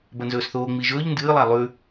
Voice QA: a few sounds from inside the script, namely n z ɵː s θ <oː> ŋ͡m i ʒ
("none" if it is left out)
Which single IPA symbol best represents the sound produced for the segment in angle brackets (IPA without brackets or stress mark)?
oː